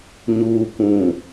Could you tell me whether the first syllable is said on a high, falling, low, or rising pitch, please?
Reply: low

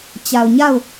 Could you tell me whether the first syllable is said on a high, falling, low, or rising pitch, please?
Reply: low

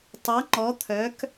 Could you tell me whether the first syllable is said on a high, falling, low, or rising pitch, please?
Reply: rising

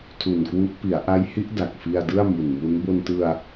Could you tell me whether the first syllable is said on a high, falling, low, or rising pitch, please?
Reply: low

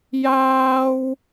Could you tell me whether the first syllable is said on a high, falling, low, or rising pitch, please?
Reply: high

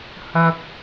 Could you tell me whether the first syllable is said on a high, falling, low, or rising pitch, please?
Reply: high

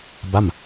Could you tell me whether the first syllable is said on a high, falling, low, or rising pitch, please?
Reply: falling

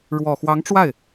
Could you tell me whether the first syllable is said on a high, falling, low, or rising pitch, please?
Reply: low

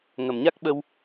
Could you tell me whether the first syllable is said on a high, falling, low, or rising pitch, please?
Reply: low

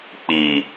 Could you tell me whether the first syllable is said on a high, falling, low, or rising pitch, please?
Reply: low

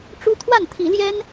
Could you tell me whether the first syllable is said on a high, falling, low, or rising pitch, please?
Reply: high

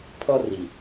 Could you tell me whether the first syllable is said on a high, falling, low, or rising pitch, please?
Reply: high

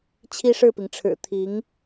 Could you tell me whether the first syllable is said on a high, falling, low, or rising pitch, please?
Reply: high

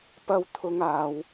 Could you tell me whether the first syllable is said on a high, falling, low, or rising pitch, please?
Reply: high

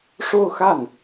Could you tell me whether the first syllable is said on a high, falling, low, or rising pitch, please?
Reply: falling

